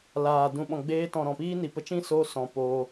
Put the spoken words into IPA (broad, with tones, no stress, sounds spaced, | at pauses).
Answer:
l aː˨ d ũ˨ ɓ ɔ̃˨ ɡ͡b eː˧ t ɔ̃˨ ɾ ɔ̃˨ p iː˦ n i˨ p ə˧ t͡ʃ ĩ˦ s o˧ s ɔ̃˨ p o˧